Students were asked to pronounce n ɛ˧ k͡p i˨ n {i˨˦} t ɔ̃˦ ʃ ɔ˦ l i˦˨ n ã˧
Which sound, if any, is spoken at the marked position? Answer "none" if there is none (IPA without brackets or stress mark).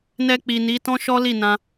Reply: i˨˦